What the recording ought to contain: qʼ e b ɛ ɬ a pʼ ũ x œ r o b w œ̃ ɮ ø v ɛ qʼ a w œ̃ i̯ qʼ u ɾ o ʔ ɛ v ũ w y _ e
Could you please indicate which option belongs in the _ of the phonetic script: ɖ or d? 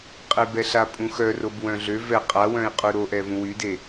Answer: d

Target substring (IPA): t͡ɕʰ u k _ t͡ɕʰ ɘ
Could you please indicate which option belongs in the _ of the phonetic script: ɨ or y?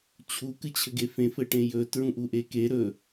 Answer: ɨ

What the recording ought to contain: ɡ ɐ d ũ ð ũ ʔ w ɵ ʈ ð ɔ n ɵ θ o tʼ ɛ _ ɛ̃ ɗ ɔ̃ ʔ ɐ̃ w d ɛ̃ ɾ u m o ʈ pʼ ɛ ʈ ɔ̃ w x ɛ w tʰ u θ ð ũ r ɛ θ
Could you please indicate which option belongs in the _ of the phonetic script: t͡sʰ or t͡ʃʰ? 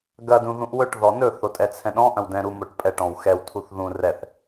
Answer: t͡sʰ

